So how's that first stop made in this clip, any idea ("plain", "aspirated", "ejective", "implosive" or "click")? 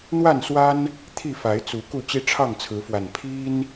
aspirated